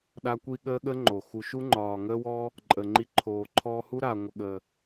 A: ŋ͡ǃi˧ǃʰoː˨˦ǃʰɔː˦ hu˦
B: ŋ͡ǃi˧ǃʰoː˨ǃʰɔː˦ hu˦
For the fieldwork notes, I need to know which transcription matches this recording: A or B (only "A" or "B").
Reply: B